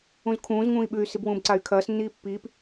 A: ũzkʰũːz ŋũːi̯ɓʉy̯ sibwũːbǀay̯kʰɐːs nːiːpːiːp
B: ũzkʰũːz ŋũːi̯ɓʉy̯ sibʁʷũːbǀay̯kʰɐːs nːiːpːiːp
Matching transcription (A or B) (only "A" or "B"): A